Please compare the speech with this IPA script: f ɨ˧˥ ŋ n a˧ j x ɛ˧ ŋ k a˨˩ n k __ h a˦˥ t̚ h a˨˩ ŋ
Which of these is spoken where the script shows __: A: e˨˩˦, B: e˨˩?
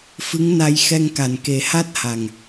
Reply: A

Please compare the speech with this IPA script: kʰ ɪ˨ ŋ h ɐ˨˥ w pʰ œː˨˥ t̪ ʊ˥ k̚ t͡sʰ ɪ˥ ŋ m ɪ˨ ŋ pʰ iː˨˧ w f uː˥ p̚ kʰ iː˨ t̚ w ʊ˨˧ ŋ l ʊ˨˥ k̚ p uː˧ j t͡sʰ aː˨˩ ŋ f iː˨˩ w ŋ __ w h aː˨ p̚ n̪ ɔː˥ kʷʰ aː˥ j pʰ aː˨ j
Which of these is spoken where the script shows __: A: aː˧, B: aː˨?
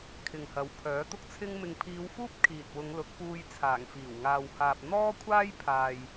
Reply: B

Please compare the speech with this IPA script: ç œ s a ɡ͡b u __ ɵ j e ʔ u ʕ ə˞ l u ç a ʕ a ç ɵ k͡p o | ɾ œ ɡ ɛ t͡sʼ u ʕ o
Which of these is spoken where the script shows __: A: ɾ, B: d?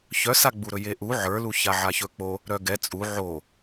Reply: A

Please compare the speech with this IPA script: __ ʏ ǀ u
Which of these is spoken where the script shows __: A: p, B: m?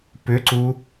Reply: A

